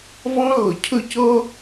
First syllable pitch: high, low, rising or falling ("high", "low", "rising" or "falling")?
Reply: high